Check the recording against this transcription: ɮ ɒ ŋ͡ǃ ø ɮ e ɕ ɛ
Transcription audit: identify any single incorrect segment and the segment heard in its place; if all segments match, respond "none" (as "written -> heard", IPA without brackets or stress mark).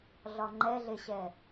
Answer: ø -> ɛ